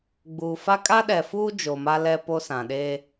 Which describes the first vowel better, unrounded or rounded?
rounded